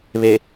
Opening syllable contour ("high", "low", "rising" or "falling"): low